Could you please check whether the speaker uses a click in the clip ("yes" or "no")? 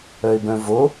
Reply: no